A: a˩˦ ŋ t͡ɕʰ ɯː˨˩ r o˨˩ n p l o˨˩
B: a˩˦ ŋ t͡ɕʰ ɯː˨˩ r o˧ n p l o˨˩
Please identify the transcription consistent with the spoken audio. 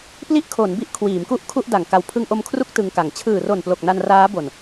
A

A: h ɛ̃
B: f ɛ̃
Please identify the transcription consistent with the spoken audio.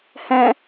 A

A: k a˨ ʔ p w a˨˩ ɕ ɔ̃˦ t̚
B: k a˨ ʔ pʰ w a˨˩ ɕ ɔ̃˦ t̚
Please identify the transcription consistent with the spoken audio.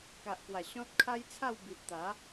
A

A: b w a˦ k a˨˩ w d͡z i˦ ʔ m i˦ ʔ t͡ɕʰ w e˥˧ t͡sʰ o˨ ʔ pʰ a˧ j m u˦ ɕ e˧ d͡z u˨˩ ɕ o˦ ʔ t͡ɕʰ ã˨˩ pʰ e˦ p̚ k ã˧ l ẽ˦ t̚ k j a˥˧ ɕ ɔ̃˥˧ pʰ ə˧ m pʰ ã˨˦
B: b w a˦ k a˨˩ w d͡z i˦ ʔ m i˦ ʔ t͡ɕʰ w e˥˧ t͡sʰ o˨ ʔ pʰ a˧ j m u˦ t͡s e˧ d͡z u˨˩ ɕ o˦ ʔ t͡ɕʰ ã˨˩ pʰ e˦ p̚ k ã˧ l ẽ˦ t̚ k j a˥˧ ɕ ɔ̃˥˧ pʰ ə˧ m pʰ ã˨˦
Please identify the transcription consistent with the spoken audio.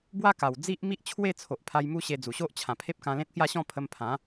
A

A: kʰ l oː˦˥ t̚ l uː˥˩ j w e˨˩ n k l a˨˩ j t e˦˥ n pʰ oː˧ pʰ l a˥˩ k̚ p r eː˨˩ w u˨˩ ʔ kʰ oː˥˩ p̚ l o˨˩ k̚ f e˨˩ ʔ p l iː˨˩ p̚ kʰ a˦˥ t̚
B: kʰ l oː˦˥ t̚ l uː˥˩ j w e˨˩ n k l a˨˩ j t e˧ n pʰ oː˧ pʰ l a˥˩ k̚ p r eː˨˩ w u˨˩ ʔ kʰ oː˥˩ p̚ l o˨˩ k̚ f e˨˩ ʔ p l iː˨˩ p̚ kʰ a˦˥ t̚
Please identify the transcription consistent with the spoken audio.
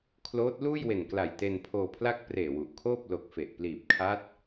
B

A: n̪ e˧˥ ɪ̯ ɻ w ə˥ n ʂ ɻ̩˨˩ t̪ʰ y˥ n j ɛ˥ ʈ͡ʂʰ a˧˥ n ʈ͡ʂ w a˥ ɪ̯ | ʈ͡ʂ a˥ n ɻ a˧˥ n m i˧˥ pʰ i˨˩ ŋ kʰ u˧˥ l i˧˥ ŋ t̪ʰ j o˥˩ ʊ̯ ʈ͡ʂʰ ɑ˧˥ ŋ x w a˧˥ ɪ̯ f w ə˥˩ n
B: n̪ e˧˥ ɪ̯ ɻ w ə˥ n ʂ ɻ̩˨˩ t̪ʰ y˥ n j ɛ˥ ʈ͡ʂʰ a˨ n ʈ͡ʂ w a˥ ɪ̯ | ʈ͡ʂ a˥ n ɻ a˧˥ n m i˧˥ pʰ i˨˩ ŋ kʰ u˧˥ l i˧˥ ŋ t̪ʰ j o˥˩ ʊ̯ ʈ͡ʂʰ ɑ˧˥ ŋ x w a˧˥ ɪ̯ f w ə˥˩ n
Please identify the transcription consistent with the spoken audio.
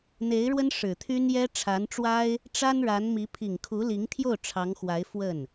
A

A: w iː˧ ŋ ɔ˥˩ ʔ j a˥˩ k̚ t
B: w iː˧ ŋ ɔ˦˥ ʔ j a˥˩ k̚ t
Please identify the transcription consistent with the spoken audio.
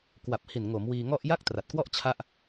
A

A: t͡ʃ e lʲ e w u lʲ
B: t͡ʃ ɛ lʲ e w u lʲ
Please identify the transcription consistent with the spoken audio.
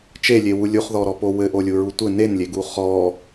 A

